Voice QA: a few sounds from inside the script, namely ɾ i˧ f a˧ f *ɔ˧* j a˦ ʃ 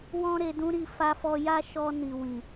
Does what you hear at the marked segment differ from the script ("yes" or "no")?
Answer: no